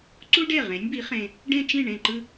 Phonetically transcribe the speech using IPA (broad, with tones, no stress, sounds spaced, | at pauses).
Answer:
ǀ u˥ ɖ e˥˩ ʁ ẽ˩˥ nʲ b i˩˥ χ ẽ˨ | ɖ ẽ˥˧ t͡ʃ ĩ˥˩ ɳ ẽ˥˩ ǃ ɯ˥˧